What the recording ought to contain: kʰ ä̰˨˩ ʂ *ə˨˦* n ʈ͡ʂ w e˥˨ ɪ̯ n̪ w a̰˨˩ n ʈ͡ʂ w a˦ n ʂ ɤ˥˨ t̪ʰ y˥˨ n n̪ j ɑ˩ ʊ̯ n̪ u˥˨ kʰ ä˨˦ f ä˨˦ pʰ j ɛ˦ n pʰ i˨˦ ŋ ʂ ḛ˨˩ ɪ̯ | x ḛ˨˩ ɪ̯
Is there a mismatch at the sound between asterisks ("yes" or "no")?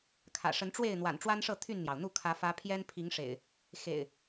no